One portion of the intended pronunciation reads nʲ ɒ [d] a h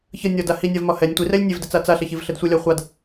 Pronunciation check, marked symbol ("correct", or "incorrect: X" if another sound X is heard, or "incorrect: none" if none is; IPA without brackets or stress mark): correct